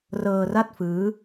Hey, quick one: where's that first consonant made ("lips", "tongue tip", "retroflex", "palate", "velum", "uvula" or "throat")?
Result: tongue tip